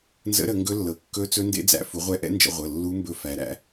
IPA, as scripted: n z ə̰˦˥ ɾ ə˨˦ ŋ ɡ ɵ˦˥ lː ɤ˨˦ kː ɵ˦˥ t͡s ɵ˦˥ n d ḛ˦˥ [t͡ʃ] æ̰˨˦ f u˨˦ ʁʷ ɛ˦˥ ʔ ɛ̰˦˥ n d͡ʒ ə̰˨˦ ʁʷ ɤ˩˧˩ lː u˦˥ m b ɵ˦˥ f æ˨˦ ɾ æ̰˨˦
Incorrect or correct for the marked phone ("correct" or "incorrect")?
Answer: incorrect